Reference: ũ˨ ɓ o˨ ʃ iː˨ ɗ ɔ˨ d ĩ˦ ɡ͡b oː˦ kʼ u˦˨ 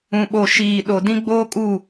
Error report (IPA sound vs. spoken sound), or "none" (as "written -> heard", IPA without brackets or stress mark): ɔ˨ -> o˨